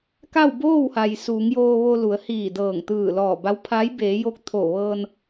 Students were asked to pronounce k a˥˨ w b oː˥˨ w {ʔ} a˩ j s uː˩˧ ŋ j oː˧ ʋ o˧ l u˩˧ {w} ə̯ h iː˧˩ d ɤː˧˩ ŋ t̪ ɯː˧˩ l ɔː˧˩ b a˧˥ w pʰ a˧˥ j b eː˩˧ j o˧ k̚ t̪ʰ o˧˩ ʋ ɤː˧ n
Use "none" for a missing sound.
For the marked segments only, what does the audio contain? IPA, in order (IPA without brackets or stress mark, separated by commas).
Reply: h, none